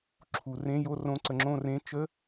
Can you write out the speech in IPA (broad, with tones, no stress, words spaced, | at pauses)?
ǁʰu˩˧rẽ˧˥˧ jo˧˥˧rõ˧˥˧ ǀə˩˧ŋ͡ǁõ˦˨rẽ˧˥˧ t͡ʃə˧˥˧